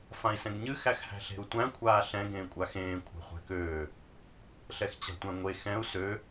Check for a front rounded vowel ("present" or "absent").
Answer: present